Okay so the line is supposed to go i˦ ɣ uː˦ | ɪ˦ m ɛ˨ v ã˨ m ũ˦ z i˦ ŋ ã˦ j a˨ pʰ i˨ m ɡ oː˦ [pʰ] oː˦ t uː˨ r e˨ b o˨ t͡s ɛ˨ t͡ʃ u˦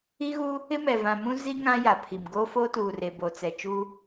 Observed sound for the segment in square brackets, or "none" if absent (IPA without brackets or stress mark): f